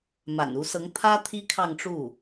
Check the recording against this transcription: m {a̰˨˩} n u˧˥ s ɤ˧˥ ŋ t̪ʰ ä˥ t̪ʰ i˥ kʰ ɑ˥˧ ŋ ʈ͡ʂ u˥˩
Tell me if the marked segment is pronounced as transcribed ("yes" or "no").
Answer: yes